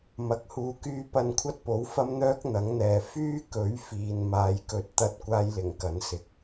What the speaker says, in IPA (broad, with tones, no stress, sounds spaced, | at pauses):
m ɐ˨ k̚ h uː˨ k yː˧ p ɐ˧ n kʷʰ ɐ˥ t̚ p o˨˥ w f ɐ˥ m n̪ œː˥ k̚ n̪ ɐ˨˥ ŋ n̪ ɛː˨ f yː˥ k ɵ˨˥ ɥ f iː˨ n m aː˧ j k ɵ˧ t̚ t̪ ɐ˥ t̚ kʷ aː˥ j l ɪ˨˩ ŋ k ɐ˨˥ n s ɪ˨ k̚